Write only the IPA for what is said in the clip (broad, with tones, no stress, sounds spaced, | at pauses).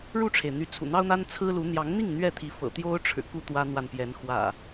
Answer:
ɻ u˥˨ ʈ͡ʂʰ e˩ ɪ̯ n̪ y˨˦ t͡sʰ ṵ˨˩ n̪ ɑ˦ ʊ̯ n̪ a˦ n t͡sʰ ɹ̩˦ l u˨˦ n̪ j ɑ˨˦ ŋ n̪ i˥˨ ŋ n̪ ɥ ɛ˥˨ t̪ʰ i˨˦ f ɤ̰˨˩ t̪ j o˦ ʊ̯ ʈ͡ʂʰ ɻ̩˨˩ k u˥˨ t̪ w ä˦ n̪ w a˨ n p j ɛ˨˦ n x w ä̰˨˩